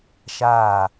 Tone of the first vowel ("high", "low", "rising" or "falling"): falling